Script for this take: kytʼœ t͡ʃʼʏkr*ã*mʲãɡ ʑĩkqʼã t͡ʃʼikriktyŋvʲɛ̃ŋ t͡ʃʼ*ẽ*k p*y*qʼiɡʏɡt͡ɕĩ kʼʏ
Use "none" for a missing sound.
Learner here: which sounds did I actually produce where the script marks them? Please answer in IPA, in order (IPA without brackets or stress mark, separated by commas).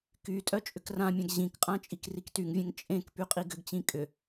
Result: ã, ẽ, y